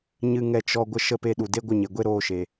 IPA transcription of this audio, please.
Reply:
ɲ ɨ˧ ŋ ɛ˧ t͡ʃ ɔ˧ ɡʷ ə˧ ʃ ə˧ p e˧ ɗ u˨ d e˦ ɡʷ ə˦˨ ɲ e˨ ɡʷ e˦ ɾ oː˧ ʃ e˨

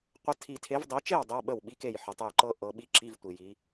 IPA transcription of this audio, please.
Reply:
qʷ ə˦˥ tʰ i˨ tʰ e˨˦ v dˤ i˨˦ t͡ʃ e˥˨ w dˤ i˧˥˧ w ɓ ə˥˨ w ɓ i˦˥ k e˥˨ j ħ ə˨ tˤ ə˥˨ j ǃ ɤ˦˥ ʔ ɤ˨˦ ɓ i˦˥ ǁ i˧˥˧ v tʷ i˨ j i˨˦

